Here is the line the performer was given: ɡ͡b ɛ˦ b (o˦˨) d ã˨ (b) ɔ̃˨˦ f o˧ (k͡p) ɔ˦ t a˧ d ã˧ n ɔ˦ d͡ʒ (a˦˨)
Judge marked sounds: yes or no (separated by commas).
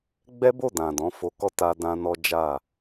yes, no, no, yes